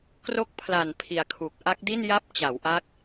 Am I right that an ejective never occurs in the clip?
yes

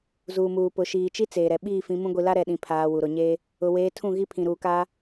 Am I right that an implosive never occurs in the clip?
no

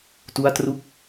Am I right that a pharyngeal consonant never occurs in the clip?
yes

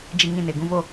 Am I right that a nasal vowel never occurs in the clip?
no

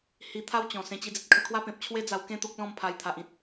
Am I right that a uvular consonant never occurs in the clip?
yes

